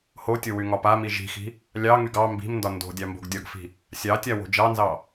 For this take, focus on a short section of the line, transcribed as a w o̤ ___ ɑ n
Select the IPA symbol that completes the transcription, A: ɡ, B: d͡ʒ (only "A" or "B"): B